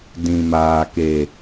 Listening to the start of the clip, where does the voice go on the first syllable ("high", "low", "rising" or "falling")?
low